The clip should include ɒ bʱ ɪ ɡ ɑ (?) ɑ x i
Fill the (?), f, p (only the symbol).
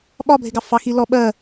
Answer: f